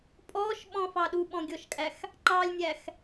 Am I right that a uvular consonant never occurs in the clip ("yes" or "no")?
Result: yes